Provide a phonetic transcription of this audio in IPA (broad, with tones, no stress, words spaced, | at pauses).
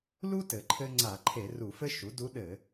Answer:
lu˥tɘ˩ǃʰɘ˧ ŋ͡ǀa˧˩˧ǃʰe˧˩˧ru˧˩˧fɘ˥ ʃu˩˥du˧˥ɗɘ˧˩˧